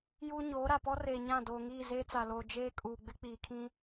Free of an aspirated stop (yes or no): no